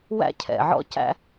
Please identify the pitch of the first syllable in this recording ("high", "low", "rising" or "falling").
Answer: high